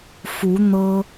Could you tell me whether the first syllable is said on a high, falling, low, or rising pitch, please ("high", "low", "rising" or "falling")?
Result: rising